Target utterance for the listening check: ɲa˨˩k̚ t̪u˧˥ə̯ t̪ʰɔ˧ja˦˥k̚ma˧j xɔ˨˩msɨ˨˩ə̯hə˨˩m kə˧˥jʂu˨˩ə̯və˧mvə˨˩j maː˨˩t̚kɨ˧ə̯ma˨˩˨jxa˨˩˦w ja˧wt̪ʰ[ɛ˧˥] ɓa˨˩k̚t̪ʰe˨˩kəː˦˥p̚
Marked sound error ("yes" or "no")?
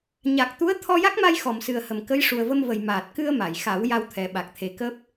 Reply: yes